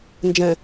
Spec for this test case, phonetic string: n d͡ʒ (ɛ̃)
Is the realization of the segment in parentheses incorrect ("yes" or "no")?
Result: no